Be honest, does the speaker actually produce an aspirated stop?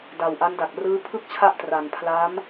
yes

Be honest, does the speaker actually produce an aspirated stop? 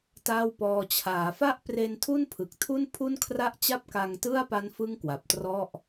yes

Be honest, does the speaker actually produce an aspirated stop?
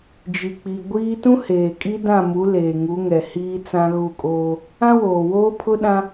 yes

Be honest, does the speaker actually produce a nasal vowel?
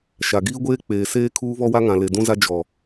yes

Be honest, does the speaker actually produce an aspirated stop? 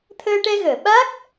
yes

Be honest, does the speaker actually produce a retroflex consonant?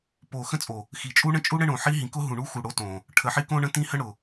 yes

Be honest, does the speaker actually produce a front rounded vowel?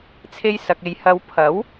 no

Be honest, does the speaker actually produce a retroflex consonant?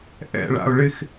yes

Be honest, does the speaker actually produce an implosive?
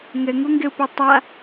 no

